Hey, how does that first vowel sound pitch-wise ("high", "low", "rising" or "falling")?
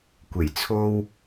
low